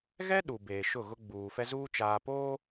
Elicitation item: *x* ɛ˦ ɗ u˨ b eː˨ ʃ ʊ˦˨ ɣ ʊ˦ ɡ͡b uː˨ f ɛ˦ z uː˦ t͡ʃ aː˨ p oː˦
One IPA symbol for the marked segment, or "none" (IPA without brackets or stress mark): ɣ